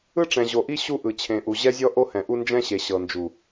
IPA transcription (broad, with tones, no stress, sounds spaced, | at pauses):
ɯ˦ ʈ͡ʂ ɛ̃˨ ʑ o˨ ʔ i˦ ɕ u˦ ʔ ɯ˨ t͡ɕʰ ẽ˨ ʔ u˨ ʑ ɛ˦ zʲ ɔ˦ ʔ o˦ h ɛ̃˨ ʔ u˦ n d͡ʒ ɛ̃˦ ɕ e˨ ɕ ɤ˨ n d͡ʒ u˨